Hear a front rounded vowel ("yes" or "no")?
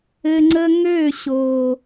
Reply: yes